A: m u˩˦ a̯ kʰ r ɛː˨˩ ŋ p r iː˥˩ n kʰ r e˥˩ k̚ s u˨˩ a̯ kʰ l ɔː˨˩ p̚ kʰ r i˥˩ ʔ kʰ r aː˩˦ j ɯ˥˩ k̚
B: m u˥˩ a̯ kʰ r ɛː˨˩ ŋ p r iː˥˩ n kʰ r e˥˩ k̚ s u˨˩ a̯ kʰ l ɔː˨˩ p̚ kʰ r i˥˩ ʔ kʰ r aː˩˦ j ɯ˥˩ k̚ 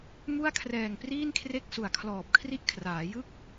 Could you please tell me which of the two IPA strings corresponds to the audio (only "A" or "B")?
B